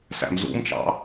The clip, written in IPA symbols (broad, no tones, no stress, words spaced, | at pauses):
sæ̰mzṵmt͡ʃɑ̰